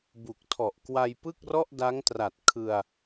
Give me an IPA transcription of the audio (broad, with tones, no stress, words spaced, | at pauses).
bu˨˩k̚tʰɔ˨˩ʔkwa˧j pɯ˥˩k̚rɔ˥˩ʔda˦˥ŋtra˨˩t̚ kʰɯ˧a̯